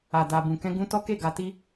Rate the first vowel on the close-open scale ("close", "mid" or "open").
open